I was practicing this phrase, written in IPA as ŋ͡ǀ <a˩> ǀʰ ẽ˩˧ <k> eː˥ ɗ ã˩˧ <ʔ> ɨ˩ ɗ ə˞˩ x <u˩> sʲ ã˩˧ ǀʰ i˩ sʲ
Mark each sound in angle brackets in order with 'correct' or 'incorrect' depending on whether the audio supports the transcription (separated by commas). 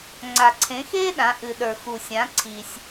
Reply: correct, incorrect, correct, correct